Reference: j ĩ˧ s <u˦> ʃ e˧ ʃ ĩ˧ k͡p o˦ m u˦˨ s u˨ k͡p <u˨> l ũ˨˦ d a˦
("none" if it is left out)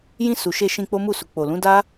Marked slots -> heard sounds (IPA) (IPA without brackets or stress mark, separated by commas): u˨, o˨